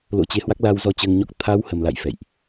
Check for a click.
absent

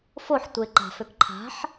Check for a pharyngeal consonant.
present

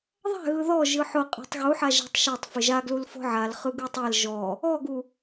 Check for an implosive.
absent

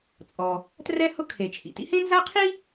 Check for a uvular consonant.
present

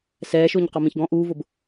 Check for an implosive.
absent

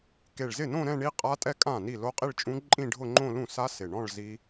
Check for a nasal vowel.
present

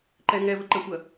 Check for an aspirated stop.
absent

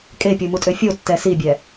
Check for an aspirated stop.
absent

